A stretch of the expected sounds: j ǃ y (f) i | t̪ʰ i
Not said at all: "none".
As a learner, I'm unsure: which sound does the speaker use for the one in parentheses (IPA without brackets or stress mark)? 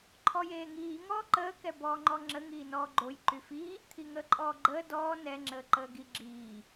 f